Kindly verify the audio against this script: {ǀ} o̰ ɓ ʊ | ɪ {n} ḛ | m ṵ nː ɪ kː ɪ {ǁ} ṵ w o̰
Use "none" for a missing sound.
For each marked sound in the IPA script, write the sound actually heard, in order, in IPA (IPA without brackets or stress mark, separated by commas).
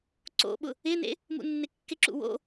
ǀ, n, ǁ